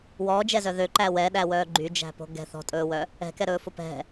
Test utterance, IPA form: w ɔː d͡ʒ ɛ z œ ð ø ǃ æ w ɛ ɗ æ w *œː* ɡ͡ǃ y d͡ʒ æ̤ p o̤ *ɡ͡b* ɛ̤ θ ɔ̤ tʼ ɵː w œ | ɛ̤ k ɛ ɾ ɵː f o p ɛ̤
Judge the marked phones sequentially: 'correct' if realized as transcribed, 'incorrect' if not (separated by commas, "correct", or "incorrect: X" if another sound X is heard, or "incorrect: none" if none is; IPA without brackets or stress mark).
correct, incorrect: ɡ